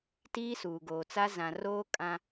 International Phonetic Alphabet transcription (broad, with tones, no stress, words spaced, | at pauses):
tiː˦suː˨ɡoː˨t͡sa˦ zã˨roː˦ kʼã˦